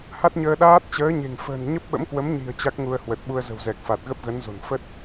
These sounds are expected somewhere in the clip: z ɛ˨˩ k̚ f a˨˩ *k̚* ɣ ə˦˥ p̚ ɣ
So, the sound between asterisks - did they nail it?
no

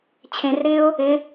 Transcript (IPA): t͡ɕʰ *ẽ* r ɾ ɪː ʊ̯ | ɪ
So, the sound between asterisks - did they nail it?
yes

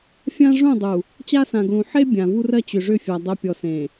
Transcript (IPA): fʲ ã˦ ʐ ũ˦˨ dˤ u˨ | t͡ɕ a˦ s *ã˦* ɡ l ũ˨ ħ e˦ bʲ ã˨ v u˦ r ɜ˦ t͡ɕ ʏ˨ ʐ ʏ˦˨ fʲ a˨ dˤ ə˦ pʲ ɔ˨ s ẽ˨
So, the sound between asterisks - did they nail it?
no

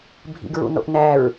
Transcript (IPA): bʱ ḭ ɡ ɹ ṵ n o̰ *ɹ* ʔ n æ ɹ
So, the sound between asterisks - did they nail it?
no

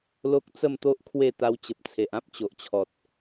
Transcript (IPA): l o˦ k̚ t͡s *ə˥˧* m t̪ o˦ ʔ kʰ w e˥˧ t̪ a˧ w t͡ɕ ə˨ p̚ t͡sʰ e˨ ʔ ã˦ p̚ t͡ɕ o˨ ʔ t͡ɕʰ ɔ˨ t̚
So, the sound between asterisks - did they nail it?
yes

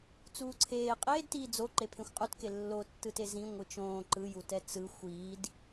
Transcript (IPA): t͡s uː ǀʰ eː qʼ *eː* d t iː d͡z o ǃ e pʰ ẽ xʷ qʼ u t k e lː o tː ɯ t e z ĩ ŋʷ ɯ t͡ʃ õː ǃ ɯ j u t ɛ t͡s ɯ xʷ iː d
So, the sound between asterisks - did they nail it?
yes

